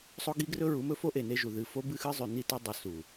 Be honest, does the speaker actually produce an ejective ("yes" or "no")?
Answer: no